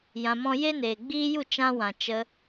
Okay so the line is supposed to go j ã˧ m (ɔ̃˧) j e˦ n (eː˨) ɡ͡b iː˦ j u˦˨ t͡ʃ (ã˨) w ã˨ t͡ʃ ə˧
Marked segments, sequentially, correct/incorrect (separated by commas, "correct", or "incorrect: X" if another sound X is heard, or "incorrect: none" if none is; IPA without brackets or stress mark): incorrect: ɔ̃˦, correct, incorrect: ã˦